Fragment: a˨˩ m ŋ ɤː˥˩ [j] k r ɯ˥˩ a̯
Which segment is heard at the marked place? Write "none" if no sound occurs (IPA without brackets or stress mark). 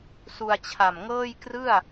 j